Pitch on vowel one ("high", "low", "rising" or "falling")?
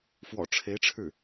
low